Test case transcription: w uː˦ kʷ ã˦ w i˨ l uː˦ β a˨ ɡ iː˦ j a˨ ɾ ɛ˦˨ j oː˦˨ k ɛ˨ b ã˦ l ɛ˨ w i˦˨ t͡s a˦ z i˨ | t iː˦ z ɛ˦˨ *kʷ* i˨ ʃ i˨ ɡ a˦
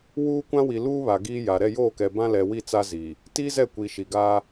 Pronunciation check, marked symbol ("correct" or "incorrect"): correct